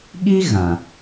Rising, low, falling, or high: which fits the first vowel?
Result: high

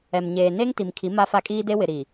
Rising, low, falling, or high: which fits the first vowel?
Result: low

